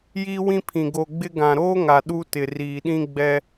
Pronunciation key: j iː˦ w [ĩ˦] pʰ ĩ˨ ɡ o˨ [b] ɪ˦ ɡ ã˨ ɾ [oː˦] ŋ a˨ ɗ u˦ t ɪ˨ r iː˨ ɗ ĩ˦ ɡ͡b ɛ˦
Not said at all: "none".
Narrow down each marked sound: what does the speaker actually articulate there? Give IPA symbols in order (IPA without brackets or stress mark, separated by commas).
ĩ˦, ɡ͡b, oː˦